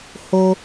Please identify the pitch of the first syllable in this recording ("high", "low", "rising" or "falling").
low